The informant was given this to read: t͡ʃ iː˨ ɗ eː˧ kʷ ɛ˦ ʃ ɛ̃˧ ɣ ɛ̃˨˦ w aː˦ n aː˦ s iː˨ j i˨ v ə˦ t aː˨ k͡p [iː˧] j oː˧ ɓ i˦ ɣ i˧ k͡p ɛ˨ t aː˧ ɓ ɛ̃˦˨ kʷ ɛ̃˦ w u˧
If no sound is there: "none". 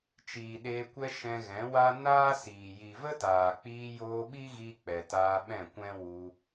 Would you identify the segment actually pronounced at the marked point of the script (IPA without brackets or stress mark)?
iː˧